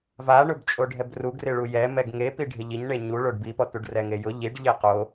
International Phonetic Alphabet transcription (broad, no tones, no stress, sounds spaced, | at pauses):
v a ɳ ʊ b t͡ʃʼ o ɖʱ ɛ b r u ɡ r ɪ ɭ u j ɛ m ɛ ɡ ŋ e p i ɖʱ ɪ ʎ i ɲ ɳ e ɲ u ɭ o ɖ b i p ɔ t u ɖ r ɛ ŋ e j ʊ ʎ i ɖ ʎ e q o